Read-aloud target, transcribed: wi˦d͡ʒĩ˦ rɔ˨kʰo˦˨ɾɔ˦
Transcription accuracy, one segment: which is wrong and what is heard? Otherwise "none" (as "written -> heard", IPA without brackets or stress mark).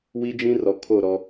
none